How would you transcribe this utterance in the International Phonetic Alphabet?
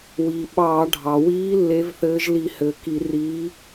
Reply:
wiː˩ɓɑː˧˩˧ ɖʱɑ˩wiː˨˥ lːe˨˥vθɘː˨˥ʒli˧˩˧ hɘː˩ki˧˩˧riː˨˥

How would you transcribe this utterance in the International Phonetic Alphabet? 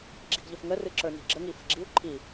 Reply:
ɡ͡ǁi̤ɡʎəfŋə rɨǁə˞ni̤ɡ͡ǁə ŋifə̤ɡ͡ǁiu̯ ǃʰi

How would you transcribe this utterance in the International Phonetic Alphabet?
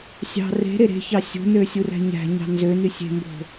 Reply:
sʲɑ̤ re̤ ɾeɾe̤çɑ sʲo̤nø sʲuræ̤ɲæ̤ɲɑ̤ nzøny sʲe̤mbo̤

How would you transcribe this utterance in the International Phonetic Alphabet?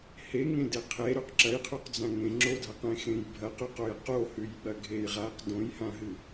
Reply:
he ŋẽdeqʰe ɾʉqǁɐjqʰʉqd͡zã ŋẽŋ͡ǁodʱaqẽ xẽjbʱɐq ʉqojqo hʉjɓɐɡʱejʁaq dõjhãɦɨ

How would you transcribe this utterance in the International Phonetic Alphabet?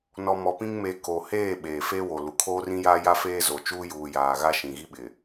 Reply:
nɔ˨mɔ˨pĩ˦ŋme˨˦ ko˨ heː˦˨ ɓeː˨ fe˦ wo˨lu˨ kʰoː˦rĩ˦jaː˦ ja˦feː˦zo˨t͡ʃuː˦ juː˨jaː˨ ɣa˦ʃĩ˨ɣi˦ɓɪ˨

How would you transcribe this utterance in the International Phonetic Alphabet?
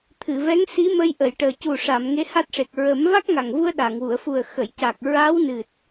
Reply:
t̪ʰɨ˨˩˨vɛ˧˥ŋsi˧˥mə˧j ʔə˨˩˨jʈəː˨˩ cu˨˩ʂa˨˩˨m ŋe˧˥ha˦˥t̚ʂe˨˩k̚ ɹə˨˩˦m va˦˥k̚ŋa˨˩ŋvu˧ə̯ ɗa˨˩˨ŋwu˨˩˨ə̯fu˨˩ə̯ xə˨˩˨jca˨˩k̚ ɹa˧˥wnɨ˨˩t̚

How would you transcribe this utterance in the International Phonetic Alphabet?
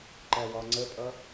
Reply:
ǃæwɒŋ͡ǀəpʼʌ

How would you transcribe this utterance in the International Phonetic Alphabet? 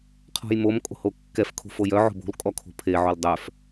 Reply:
qʰɔ̤jmom kʼo̤hokːɛf kʰo̤fojœ ʕo̤bo̤l kʼɔkʰo̤pʰe ʕoldˤœf

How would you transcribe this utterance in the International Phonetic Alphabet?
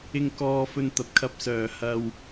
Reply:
ɪ˧ŋkɔː˧fɵ˧n t̪ɐ˨p̚kʰɐ˥p̚sœː˨ hɐ˧w

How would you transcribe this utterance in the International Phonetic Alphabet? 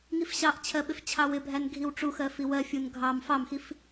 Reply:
ŋifɕɑʔt͡ɕʰɜ ɓɪft͡ɕʰɑwɪbʱæn ɡʱiwʈ͡ʂuxɜ fiwɜfʲun ɡʱɑm fɑmxif

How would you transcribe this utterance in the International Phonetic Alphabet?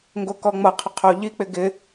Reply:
ŋɡokɔŋ͡mʌqʰʊ qʰoʎik͡pɪ ɡɪ

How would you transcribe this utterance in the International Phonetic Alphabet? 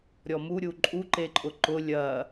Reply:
ɾʲɔmu ɾʲuǃʼu ǃeǃʼʊǃʊ lʲɐ

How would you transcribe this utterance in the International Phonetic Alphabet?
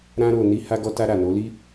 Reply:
ɾã˦ɾo˧ ni˧ ha˧ɡɔ˧ta˧ ɾa˨no˨˦li˦

